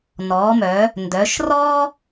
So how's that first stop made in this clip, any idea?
plain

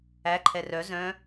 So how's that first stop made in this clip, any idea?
click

